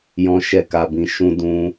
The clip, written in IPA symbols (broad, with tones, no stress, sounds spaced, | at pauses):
j ɔ̃˦ ʃ ɛ˦˨ k a˧ b ĩ˧ ʃ ũ˦ d ũ˦